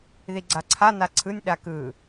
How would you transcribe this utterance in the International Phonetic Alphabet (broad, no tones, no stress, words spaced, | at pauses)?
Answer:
ðiɡ͡ǀaǀʰa naǀʰɯnʲ ɗakɯ